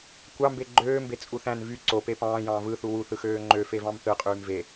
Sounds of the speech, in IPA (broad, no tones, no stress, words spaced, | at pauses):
kʷɑmbe ɡ͡ǃøːmbe t͡sʼuθæ̃n vy ǀope pɑ̃ːjɑ̃ː vɯθu wuθɯxøː ŋ͡ǃøfevɑ̃m θɯqʼyːm ve